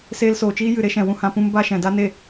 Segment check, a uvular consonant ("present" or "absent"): absent